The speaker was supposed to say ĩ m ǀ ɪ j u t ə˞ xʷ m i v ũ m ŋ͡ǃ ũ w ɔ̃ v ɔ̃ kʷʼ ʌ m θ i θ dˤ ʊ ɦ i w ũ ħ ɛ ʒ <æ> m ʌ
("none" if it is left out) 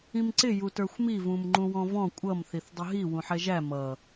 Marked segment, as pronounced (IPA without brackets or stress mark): æ